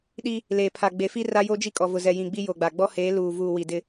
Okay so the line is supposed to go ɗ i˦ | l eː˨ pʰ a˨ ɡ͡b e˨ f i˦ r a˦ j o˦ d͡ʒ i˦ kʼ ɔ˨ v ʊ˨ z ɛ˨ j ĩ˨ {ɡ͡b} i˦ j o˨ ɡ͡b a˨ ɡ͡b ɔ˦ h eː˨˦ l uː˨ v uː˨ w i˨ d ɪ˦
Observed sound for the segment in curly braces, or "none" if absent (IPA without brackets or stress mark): ɡ͡b